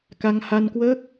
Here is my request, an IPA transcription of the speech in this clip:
ka˧ŋha˧nkwəː˦˥k̚

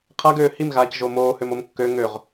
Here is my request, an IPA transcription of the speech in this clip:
qʰaɡøː himɣaːc ʒomoːhøm omkːø ŋøʁ

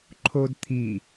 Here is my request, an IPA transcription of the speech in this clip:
ǃʰodt̪ʰi

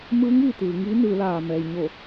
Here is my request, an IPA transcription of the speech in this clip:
mɯː˧˥ŋ ʋi˩t̪ɯː˩˧ ŋiː˧˥nɯː˩˧laː˩ mɛː˩jɲo˧˩

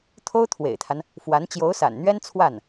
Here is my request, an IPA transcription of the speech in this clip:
t̪ʰo˥ʊ̯t̪ʰwḛ˨˩ɪ̯t̪ʰa˦n | fwa˧˥n t͡ɕjo˧˥ʊ̯sa̰˨˩nn̪ɥɛ˥n t͡sʰwa˥˩n

